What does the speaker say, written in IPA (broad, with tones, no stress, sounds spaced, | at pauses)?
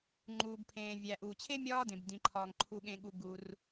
ŋ͡ǃ uː˩ b pʰ ẽː˩ vʲ æ˩ ʔ uː˩ t͡ɕʰ e˥ mʲ ɒː˥ d ẽ˩ b d ĩ˩ ǃʰ ɒː˩ ŋ ǃʰ u˩ ɠ ẽ˩ ɠ u˩ ɡ u˩ r